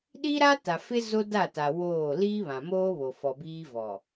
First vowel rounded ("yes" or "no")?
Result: no